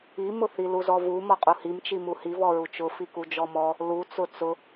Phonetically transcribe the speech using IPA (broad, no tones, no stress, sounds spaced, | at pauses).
i m ʊ θ i l u z ɔ v u m ɔ qʼ u h i m t͡ʃ i m u h i v ɔ ɹ u t͡ʃ ʊ f i k u d͡ʒ ɔ m ɔ | l u t͡s ʊ t͡s ʊ